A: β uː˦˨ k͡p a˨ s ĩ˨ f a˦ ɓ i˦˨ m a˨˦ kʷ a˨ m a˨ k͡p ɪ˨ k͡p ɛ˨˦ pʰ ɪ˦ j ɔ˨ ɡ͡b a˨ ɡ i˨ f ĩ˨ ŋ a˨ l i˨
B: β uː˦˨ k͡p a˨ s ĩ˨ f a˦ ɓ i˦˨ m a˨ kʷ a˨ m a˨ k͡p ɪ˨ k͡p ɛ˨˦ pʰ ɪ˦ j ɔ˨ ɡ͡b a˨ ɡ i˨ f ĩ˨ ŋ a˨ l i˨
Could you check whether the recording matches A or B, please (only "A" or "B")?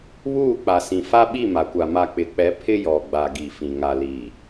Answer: B